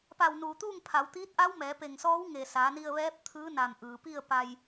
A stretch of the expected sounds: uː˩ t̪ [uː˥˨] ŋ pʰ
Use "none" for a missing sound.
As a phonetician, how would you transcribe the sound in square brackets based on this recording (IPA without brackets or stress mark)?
uː˥˨